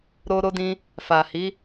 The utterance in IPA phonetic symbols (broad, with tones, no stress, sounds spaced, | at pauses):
ɾ o˧ ɾ o˧ d ĩ˧ | f a˨ h i˨˦